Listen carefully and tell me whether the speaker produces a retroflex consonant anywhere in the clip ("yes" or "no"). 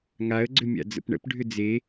yes